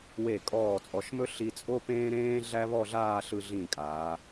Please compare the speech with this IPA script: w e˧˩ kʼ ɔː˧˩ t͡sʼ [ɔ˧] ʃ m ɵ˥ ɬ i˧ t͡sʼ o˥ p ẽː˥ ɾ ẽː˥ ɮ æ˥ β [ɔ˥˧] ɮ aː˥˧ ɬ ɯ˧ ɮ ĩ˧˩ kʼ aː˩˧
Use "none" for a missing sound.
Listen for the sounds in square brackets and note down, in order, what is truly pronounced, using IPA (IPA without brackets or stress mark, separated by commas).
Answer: ɔ˩˧, ɔ˥˧